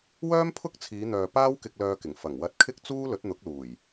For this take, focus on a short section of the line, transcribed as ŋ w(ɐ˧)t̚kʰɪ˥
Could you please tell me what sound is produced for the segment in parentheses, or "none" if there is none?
ɐ˧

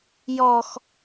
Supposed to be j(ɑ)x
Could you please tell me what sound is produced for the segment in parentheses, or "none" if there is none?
ɔ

